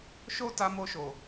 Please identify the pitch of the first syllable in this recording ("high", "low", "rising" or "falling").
high